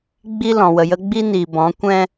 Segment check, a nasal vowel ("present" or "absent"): present